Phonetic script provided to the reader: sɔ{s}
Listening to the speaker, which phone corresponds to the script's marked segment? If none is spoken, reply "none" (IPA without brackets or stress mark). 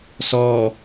none